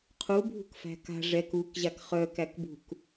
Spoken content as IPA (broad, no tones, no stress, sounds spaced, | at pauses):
qʰ u bʱ ṳ k f æ̤ k a̤ ʐ ɛ k u k ʑ a k χ œ k æ k b ṳ k